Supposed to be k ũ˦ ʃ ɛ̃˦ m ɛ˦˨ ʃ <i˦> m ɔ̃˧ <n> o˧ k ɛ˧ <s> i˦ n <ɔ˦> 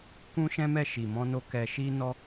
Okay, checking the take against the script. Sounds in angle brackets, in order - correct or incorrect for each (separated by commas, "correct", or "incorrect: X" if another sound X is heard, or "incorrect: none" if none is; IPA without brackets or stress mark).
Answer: incorrect: i˨, correct, incorrect: ʃ, correct